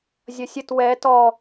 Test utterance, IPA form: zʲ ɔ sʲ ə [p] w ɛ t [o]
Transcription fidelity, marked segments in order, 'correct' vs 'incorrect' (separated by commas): incorrect, incorrect